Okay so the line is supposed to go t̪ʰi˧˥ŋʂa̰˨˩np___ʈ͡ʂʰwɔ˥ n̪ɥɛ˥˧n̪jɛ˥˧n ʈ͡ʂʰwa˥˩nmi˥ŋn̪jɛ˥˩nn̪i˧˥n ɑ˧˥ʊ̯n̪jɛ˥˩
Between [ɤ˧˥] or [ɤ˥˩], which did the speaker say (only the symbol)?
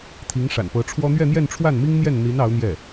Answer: ɤ˧˥